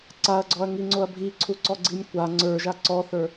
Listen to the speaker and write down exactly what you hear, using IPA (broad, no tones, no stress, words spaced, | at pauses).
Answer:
ǀaɐ̯ɡ͡ǀɔɐ̯ŋiŋ͡ǀoɐ̯ bʱiǀʰuǀɔɡ͡ǀinʲ kʷa ŋ͡ǀə˞ʒa ǀɔθə˞